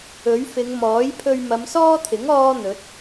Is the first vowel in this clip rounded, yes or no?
yes